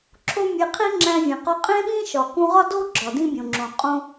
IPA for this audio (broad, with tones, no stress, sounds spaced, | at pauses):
ǁʰ o˦ mʲ e˧ qʰ i˦ ŋ͡ǁ æ̃˧ vʲ ẽ˨ q ɒ˧ qʼ ẽ˦ ɓ ĩ˦ ʃ ɒ˨ k ũ˧ ʁ ɒ˦ d o˦ ɡ͡ǁ ɒ˨ d ĩ˦ bʲ õ˨ ŋ͡ǁ õ˨ qʼ õ˦